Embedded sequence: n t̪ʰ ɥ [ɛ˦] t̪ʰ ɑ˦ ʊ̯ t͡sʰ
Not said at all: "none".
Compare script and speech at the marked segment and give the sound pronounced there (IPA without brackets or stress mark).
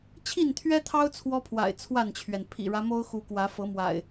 ɛ˦